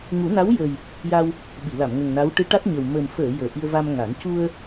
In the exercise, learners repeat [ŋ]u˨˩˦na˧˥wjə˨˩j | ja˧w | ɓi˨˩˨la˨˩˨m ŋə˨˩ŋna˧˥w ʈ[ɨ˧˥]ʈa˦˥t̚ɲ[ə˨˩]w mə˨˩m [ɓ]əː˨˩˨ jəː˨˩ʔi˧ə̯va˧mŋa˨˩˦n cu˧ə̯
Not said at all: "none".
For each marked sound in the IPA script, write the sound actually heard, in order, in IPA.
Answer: ŋ, ɨ˧˥, ə˨˩, f

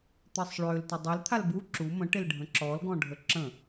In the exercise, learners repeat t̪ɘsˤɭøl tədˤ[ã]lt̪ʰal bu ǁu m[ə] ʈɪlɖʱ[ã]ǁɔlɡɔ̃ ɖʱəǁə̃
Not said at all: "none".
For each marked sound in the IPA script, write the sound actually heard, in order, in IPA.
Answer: a, ə̃, ə̃

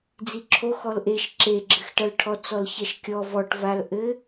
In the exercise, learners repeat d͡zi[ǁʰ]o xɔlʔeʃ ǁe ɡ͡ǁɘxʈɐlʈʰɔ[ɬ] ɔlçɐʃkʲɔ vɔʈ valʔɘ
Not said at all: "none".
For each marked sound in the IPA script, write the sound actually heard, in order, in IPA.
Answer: ǁʰ, t͡s

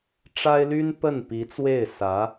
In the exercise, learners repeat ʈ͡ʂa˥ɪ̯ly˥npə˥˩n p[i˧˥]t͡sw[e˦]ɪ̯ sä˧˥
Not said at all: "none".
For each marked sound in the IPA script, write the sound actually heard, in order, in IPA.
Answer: i˧˥, e˥˩

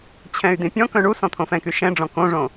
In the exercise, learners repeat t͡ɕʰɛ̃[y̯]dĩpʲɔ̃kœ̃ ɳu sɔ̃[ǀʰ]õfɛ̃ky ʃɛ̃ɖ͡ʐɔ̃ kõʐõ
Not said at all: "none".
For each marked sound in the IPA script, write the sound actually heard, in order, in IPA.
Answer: y̯, t̪ʰ

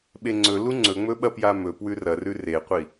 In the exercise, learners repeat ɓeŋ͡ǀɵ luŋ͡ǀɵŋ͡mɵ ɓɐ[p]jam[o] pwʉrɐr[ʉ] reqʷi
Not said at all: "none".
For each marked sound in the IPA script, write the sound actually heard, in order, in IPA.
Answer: p, ɵ, ʉ

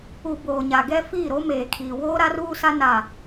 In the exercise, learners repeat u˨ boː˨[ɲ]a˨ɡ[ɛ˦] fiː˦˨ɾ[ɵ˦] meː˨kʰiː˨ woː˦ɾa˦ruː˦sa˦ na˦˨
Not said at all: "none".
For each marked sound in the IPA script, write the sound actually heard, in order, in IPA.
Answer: ɲ, ɛ˦, o˦

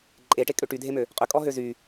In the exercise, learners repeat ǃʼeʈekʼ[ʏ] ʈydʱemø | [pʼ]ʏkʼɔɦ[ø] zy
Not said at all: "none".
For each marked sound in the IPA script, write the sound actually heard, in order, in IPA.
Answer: ʏ, qʼ, ø

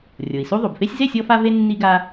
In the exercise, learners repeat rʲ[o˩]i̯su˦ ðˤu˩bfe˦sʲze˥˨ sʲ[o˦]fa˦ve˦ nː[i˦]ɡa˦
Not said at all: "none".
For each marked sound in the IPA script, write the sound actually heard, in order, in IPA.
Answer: o˩, ɔ˦, i˦

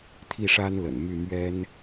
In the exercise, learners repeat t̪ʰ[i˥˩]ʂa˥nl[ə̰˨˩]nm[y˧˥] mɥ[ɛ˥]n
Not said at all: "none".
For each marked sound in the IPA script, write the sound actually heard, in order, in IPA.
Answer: i˥˩, ə̰˨˩, y˥˩, ɛ˥

